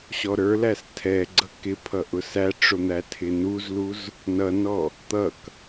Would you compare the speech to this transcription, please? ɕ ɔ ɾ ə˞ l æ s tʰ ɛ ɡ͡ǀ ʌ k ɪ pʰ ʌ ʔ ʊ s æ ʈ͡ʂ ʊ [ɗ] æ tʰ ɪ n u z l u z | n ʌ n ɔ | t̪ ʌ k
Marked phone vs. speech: incorrect: n̪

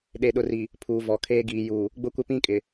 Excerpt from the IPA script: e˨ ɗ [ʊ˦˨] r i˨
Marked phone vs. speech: incorrect: ʊ˨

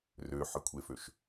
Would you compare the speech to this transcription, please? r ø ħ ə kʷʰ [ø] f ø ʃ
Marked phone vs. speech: incorrect: e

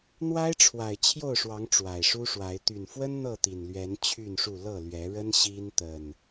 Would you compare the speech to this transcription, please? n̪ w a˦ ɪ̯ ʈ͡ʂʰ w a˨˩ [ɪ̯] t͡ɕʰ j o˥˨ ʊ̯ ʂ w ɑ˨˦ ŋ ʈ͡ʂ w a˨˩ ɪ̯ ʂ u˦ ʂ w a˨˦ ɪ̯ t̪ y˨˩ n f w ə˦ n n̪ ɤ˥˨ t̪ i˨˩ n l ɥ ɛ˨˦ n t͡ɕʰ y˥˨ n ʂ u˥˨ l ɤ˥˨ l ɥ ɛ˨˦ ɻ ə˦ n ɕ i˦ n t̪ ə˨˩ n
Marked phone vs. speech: correct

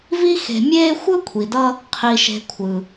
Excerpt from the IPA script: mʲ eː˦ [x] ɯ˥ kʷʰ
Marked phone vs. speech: incorrect: xʷ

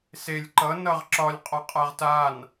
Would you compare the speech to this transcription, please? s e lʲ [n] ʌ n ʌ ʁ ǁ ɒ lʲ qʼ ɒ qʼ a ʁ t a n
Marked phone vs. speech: incorrect: ǃ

